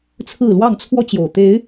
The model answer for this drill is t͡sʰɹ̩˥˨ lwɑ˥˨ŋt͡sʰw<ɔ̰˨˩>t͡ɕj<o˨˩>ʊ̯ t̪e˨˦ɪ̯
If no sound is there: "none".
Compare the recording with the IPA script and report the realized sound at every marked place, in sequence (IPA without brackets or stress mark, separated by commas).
ɔ˦, o˨˩